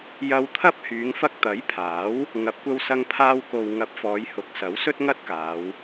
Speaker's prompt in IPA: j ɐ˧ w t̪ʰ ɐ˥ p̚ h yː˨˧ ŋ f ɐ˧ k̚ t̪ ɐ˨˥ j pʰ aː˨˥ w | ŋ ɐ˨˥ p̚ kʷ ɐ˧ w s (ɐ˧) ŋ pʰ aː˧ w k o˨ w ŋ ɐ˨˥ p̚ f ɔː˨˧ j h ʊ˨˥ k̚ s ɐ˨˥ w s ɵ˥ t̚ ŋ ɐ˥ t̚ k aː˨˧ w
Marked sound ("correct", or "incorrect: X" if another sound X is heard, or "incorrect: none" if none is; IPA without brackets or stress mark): correct